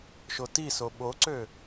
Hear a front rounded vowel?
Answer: yes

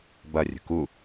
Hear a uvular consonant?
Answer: no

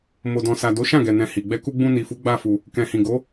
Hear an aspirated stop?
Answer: no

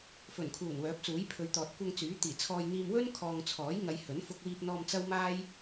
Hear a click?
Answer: no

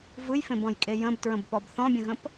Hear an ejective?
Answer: yes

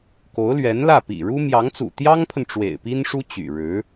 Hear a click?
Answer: no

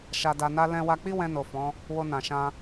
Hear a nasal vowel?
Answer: yes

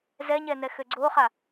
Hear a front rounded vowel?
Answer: yes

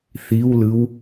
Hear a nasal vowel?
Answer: no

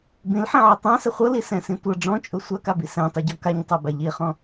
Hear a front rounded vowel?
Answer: no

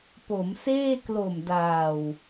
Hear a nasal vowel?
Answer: no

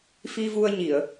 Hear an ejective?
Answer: no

